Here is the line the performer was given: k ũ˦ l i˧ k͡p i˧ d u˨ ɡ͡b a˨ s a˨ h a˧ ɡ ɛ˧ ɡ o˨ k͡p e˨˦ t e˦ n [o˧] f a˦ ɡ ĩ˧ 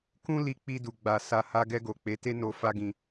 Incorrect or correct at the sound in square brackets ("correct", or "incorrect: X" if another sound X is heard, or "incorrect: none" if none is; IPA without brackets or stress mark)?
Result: correct